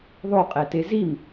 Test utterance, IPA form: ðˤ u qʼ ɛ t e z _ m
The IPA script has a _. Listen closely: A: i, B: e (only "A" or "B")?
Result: A